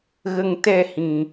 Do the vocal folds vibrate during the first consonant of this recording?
yes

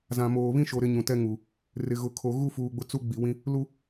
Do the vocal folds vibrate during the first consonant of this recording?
yes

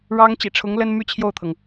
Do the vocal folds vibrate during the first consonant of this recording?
yes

